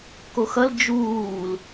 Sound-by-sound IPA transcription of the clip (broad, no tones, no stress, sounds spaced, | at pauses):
k o x ʌ l d͡ʒ uː l